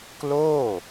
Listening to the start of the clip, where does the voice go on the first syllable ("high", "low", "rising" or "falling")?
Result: falling